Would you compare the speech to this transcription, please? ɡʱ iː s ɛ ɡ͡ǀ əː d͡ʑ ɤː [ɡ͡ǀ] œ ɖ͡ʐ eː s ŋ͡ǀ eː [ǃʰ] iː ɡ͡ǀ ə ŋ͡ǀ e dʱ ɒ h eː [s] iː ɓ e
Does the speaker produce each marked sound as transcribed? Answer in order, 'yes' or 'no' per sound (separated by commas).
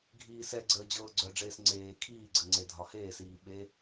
yes, no, yes